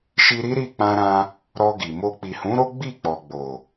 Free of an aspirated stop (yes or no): yes